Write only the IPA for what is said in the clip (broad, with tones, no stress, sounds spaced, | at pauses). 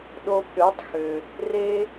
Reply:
ɗ o˧ b ɗ ø˨˦ tˤ x ø˨ | r e˦